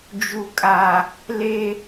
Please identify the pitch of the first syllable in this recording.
low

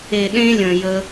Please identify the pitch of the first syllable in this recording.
low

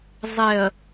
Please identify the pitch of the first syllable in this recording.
low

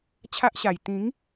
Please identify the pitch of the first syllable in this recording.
high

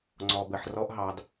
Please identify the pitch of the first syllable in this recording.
low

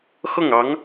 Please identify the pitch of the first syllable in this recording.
falling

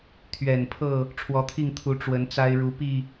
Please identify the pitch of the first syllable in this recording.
low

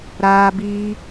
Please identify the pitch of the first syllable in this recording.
high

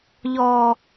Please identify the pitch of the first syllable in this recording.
high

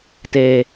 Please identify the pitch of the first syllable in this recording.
low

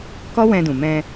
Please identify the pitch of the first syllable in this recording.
high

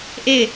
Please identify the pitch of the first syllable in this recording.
falling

